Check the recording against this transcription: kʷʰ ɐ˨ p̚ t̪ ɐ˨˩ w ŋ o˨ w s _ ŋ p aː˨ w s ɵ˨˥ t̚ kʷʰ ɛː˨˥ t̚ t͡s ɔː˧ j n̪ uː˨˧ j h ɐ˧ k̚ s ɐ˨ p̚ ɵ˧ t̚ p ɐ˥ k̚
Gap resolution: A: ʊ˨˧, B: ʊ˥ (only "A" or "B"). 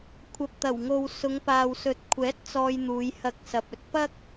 A